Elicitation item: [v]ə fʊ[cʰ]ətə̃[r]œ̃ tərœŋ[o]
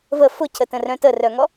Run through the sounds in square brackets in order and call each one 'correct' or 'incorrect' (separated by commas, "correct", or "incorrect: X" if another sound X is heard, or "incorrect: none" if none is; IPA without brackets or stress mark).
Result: correct, correct, correct, incorrect: ɔ